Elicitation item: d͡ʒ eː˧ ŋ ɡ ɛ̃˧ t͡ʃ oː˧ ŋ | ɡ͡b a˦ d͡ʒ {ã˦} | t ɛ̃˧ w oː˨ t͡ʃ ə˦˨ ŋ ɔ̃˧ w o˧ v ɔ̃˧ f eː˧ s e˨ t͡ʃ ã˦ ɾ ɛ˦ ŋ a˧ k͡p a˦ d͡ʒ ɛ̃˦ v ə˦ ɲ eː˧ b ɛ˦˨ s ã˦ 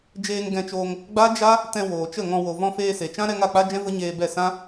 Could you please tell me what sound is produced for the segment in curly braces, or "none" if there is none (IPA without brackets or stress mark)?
a˦